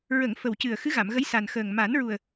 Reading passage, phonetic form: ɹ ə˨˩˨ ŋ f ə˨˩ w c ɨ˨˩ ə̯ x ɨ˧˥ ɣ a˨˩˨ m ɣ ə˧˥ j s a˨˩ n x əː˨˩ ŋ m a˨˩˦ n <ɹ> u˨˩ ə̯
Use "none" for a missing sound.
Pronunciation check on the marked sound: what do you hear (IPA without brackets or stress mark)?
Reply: ɹ